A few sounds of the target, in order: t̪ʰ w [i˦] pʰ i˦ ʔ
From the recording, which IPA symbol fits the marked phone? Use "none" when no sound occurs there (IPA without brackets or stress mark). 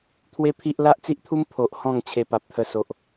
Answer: e˦